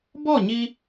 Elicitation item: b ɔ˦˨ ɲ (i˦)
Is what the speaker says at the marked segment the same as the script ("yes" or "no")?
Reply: yes